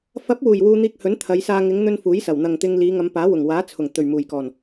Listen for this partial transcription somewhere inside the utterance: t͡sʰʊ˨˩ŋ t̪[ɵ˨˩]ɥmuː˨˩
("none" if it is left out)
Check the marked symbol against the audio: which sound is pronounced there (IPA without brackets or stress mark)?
ɵ˨˩